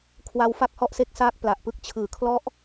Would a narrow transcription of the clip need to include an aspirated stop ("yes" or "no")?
yes